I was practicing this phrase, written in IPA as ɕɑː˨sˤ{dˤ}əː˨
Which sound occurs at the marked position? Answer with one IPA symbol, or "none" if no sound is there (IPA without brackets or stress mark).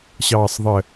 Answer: ðˤ